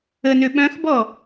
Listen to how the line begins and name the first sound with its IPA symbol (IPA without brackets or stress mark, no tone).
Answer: ə